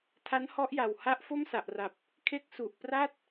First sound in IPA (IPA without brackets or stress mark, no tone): tʰ